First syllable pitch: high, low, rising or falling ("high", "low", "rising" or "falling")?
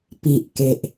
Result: low